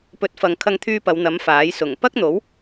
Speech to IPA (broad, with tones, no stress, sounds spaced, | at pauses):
p ɵ˨˥ t̚ f ɐ˨ ŋ kʰ ɐ˧ ŋ t̪ʰ yː˧ p ɐ˨˧ w n̪ ɐ˨˥ m f aː˨˥ j s ʊ˨˩ ŋ p ɐ˥ k̚ n̪ o˨˥ w